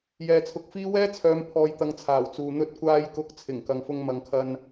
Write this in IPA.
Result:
j ɛː˨ t͡sʰ ʊ˨˥ k̚ f iː˥ w ɛː˥ t͡sʰ œː˨˧ m pʰ ɔː˨ j t̪ ɐ˨ ŋ t͡sʰ aː˨˩ w t͡s uː˨ n̪ ɵ˧ t̚ kʷ aː˧ j k ʊ˨˥ k̚ t͡sʰ ɪ˨˩ ŋ k ɐ˨ ŋ f ʊ˧ ŋ m ɐ˨ ŋ kʰ ɐ˧ n

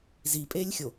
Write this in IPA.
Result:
z i pʼ e lʲ xʲ o

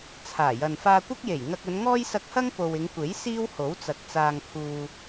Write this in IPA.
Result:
t͡sʰ aː˨˩ j ɐ˨ n f aː˧ kʷ ɪ˥ k̚ j e˨˩ j ŋ ɐ˧ k̚ ɵ˨˧ n ŋ ɔː˥ j s ɐ˧ k̚ h ɐ˥ ŋ p o˨ w ɪ˨˧ ŋ kʷ e˨˥ j s iː˥ w h o˨˥ w t͡s ɐ˨ k̚ t͡s aː˨ ŋ pʰ uː˨

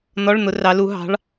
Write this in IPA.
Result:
n̪ ɔ˧˥˧ ɭ n̪ ʊ˨˦ r ɑ˨˦ l u˨˦ ɦ ɑ̤˨˦ ɭ

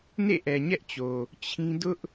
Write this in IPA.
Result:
n ḛ˦˨ ʔ ɛ˨ ɲ ɛ˦ ʔ t͡ɕ o˨ | t͡ɕʰ ĩ˦ d ʊ˦ ʔ

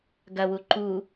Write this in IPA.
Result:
ɡ ɐ w u ǃ u

